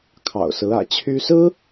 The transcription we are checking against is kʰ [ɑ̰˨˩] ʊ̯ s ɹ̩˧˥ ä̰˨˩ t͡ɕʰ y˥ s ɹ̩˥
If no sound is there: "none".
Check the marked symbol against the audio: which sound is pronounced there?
ɑ̰˨˩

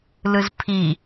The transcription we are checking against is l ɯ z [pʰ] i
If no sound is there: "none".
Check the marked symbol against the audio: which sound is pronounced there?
pʰ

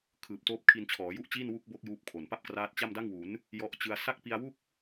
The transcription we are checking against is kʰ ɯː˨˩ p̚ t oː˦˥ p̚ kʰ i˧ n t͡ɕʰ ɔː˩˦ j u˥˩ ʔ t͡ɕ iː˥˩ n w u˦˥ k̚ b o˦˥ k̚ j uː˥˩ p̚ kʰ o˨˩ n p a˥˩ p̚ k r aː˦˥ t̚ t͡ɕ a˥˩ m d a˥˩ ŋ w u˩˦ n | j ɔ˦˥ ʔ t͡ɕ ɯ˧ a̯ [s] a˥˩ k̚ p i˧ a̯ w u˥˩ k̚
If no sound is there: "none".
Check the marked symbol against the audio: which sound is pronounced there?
s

